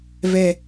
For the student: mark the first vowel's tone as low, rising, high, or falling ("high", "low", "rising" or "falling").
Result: low